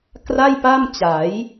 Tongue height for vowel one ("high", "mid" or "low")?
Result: low